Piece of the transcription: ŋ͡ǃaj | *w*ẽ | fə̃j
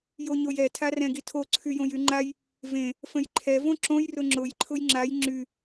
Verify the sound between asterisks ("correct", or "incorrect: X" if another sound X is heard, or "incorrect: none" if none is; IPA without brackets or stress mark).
incorrect: v